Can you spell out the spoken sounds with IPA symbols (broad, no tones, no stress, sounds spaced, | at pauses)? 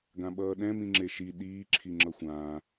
ɡ ã ɓ ʌː ɗ ɛ̃ m ĩ ŋ͡ǁ e ʃ i ɗ iː ǁʰ i ŋ͡ǁ ʌ xʷ ãː